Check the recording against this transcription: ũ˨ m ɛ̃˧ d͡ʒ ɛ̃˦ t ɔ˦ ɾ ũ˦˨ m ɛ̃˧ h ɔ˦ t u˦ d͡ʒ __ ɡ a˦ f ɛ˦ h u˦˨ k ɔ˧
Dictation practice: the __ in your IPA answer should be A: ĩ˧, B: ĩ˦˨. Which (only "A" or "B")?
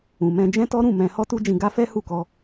A